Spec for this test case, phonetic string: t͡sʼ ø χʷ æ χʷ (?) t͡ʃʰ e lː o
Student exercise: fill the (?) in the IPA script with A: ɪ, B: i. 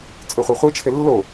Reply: B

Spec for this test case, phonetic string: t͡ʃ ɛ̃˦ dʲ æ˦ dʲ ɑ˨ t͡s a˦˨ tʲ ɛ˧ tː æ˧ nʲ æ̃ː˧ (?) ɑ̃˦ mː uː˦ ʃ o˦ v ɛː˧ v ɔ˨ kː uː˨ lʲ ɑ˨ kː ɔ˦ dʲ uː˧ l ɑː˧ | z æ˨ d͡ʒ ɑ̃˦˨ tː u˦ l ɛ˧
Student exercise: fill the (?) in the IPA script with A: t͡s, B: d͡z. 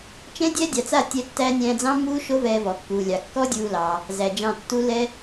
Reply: B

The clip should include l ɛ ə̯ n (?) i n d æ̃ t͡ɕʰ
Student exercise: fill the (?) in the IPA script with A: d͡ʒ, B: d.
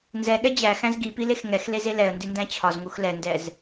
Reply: B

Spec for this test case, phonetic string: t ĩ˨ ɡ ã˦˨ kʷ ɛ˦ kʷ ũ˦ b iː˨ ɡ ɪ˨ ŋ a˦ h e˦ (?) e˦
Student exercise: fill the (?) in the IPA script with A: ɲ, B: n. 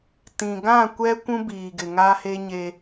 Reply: A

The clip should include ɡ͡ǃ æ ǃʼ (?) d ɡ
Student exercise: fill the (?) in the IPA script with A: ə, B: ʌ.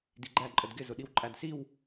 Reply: A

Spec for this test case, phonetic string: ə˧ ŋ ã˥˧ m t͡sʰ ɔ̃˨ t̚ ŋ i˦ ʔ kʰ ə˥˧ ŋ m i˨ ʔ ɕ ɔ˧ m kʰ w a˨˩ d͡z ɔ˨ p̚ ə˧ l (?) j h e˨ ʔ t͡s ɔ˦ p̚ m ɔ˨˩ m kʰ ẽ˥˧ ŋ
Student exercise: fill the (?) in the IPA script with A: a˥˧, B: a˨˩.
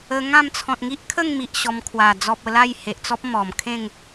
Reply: A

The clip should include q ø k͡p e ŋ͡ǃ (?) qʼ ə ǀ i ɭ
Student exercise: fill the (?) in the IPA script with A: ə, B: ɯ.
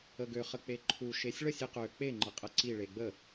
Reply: A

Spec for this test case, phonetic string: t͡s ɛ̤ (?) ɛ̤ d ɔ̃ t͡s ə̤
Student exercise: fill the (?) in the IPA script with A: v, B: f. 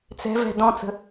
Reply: A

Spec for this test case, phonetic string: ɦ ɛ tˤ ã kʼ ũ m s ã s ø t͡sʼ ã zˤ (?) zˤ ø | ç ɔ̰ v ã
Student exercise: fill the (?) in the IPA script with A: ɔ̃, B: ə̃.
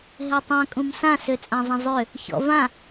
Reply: B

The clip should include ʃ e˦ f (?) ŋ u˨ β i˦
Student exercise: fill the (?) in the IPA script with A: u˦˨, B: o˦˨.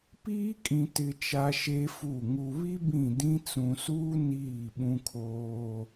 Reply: A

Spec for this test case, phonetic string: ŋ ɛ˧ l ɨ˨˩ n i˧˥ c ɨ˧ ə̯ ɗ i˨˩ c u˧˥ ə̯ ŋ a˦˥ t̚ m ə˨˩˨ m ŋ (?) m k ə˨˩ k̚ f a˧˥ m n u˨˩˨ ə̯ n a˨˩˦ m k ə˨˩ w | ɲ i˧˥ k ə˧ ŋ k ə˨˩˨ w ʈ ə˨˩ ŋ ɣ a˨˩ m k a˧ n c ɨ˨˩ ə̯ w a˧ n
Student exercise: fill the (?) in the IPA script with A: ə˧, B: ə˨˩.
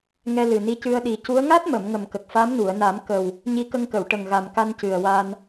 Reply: B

